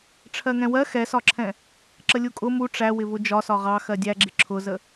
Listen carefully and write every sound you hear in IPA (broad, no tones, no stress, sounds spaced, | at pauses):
ʈ͡ʂʰ ɜ ŋ ɛ̃ w ɜ x ɛ s ɒ ǁʰ ɛ̃ | ǁ ə lʲ u kʼ ʊ m u ʈ͡ʂ æ w ɪ v ʊ d͡ʒ ɒ s ɒ ʁ ɑ x ɜ dʲ æ ɡ͡ǁ ɪ ǁʰ ʊ z ə